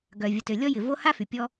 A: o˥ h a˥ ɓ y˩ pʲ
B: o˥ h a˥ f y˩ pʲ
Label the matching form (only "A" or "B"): B